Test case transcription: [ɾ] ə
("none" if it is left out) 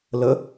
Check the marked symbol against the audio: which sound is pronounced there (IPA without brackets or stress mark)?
l